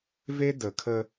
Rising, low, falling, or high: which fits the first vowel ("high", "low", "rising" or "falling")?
high